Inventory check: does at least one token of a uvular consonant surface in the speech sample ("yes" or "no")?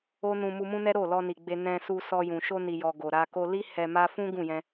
no